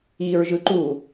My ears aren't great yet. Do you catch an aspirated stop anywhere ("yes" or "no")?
no